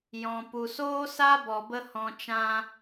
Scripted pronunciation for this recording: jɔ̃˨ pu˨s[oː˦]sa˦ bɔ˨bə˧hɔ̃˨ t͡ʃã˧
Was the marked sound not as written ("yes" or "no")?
no